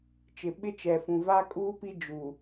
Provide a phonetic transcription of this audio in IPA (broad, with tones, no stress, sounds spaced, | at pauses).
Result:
t͡ʃ ɪ˨ ɓ ɪ˦ t͡ʃ ɛ˨ f ũ˨ v a˦ kʼ uː˦ p i˦ d͡ʒ u˨